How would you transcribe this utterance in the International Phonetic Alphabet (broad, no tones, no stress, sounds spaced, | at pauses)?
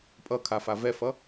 pʼ ʌ kʰ a f a v ɛ f ʌ